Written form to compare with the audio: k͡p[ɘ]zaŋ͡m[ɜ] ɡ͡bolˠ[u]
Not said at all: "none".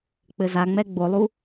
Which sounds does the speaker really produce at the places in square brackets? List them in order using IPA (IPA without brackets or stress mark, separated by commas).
ɘ, ɛ, u